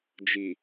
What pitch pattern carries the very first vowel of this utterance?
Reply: low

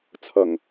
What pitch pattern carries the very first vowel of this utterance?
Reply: low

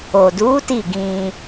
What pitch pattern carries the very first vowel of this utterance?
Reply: low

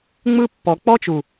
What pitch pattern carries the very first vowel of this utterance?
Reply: high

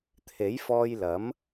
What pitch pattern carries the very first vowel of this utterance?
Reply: rising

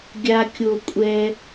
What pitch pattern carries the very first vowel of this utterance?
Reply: high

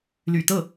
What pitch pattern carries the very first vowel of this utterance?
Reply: low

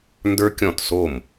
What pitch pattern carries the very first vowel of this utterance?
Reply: high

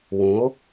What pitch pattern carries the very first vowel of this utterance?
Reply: rising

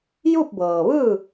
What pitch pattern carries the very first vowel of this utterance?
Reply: falling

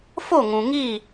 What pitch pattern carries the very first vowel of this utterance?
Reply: falling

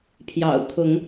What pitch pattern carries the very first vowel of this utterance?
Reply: low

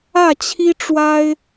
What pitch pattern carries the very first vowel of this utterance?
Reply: falling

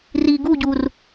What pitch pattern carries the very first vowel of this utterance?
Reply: low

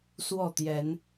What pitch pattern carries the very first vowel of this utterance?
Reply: falling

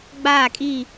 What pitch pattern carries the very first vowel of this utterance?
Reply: falling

